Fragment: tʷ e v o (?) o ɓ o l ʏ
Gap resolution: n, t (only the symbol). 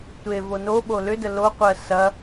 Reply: n